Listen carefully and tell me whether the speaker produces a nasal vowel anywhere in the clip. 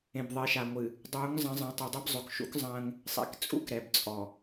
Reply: yes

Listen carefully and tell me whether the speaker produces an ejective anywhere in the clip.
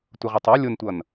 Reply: no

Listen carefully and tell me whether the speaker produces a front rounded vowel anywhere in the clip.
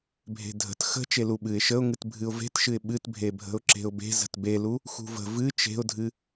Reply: no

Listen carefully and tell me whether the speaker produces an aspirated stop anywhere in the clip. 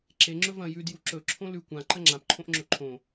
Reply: yes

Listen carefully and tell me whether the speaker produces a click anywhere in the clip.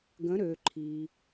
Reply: yes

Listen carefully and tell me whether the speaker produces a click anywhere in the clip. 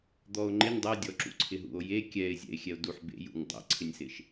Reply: yes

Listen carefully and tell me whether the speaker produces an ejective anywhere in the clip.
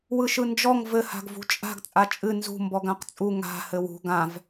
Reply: yes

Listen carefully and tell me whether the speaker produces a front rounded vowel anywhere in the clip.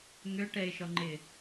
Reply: yes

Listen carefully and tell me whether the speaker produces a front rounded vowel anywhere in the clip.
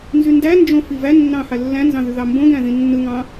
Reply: yes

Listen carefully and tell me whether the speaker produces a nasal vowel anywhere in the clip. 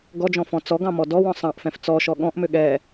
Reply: yes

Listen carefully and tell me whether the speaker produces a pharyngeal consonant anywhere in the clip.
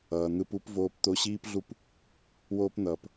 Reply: no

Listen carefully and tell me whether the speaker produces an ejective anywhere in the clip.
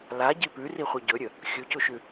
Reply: no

